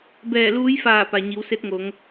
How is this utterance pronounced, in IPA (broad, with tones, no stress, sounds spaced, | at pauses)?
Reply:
b ɛː˧˩ l uː˧˥ j f aː˧˩ p a˩ ɲ i˩˧ w s e˧˥ t̚ ŋ o˩˧ ŋ